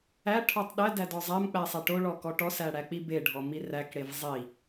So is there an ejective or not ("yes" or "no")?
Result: no